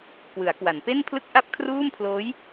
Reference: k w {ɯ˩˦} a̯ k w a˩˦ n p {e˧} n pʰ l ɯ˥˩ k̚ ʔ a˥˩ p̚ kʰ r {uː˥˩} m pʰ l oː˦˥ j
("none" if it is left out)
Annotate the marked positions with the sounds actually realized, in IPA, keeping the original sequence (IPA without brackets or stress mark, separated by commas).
ɯ˩˦, e˥˩, uː˥˩